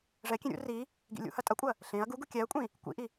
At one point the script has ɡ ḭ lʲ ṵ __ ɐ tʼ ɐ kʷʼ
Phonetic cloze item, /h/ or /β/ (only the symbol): h